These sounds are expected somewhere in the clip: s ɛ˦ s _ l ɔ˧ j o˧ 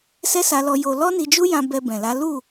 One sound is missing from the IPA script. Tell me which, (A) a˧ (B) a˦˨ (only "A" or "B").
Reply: A